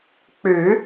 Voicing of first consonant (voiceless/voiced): voiceless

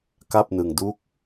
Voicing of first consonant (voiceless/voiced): voiceless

